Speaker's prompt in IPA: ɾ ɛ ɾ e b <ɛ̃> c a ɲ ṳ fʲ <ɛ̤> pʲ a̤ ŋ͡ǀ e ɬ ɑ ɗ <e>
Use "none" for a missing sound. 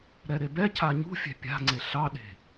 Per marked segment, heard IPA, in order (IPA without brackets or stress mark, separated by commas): ɛ, ɛ̤, e̤